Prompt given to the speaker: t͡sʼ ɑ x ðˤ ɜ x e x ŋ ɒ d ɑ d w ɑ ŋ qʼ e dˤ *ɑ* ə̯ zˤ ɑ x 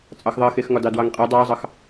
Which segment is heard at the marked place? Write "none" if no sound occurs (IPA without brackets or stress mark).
ɑ